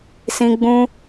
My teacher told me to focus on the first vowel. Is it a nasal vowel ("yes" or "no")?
yes